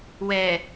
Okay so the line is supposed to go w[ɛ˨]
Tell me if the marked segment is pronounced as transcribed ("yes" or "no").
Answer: yes